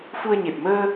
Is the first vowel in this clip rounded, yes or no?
yes